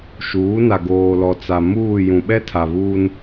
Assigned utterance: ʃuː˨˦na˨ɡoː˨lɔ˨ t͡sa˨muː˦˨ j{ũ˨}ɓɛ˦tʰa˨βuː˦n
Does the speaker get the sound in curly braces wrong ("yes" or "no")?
no